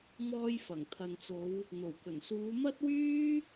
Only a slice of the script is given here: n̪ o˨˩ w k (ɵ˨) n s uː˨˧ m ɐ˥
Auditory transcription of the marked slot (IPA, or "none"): ɵ˨˩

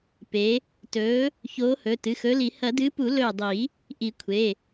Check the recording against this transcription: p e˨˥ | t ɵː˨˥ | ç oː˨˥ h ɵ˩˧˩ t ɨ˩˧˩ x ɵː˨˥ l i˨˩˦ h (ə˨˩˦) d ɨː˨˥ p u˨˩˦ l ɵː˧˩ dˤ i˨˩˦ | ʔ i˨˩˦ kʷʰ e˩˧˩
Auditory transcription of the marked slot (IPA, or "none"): ɐ˨˩˦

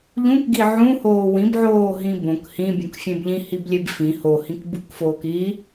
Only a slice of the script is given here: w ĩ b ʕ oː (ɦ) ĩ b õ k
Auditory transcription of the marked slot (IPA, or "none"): ɦ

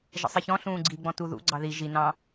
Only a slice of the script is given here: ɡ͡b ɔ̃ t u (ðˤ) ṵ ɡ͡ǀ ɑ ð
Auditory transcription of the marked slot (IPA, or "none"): ð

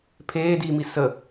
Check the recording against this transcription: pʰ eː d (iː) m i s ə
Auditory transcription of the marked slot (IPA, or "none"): iː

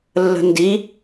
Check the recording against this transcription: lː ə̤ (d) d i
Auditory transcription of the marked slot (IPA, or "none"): n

